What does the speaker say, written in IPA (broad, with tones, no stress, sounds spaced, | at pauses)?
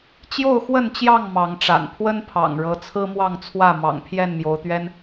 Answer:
t͡ɕ j o˥˨ ʊ̯ x w ə˥˨ n t͡ɕ j ɑ˥˨ ŋ m ɑ˨˦ ŋ ʈ͡ʂ a̰˨˩ n pʰ w ə˦ n pʰ ɑ̰˨˩ ŋ ɻ ɤ˨˦ t͡sʰ ɹ̩˦ m w ɑ˥˨ ŋ t͡sʰ w ä˥˨ m ɑ̰˨˩ ŋ pʰ j ɛ˥˨ n m j o˨˦ ʊ̯ t̪ ɥ ɛ˦ n